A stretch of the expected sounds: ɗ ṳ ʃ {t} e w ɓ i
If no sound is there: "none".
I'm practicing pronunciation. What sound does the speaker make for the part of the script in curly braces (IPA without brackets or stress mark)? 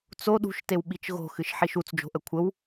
t